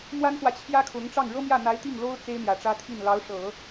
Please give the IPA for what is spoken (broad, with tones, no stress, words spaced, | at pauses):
mwa˥nxwä˨ t͡ɕʰjä˥kʰʊ˧˥ŋ ʈ͡ʂɑ˥˩ŋ ɻɤ˥mjä˥˩ n̪a˧˥ɪ̯ t̪i˥˩ŋlo˥ʊ̯ t͡se˥ɪ̯n̪jä˨˩ʈ͡ʂä˥t̪ʰi˥˩n lɑ˧˥ʊ̯ʂɤ˨˩˦